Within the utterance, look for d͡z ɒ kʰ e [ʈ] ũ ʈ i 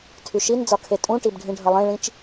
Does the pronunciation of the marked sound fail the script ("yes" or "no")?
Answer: yes